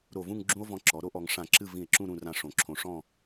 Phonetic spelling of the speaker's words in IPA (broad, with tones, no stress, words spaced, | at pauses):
ɾo˧˩vũ˥˧ŋ ɡ͡ǁũ˥o̯vɔ̃˧ǁɔ˩˧ ɾo˥ʔɔ˩˧ŋ ʂã˧˩ǁɨ˥˧ vĩ˧˩e̯ǁũ˥˧ ɾũ˥˧rã˥˧ʂõ˧˩ ǁʰõ˧ ʂɔ̃˥˧